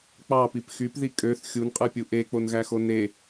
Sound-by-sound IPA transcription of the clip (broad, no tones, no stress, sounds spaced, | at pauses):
k͡p ɑ p i p x y p ð i kʼ ø θ xʲ u n qʼ ɯ pʲ u ʔ e k͡p o n ɣ æ x o n e